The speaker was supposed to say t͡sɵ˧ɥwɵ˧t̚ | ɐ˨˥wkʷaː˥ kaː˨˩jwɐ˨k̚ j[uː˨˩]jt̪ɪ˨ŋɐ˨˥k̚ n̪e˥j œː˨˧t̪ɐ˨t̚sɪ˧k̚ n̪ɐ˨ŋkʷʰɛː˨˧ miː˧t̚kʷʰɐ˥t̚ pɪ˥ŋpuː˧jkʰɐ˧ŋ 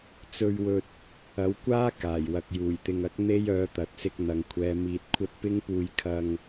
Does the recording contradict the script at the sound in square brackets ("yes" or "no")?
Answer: no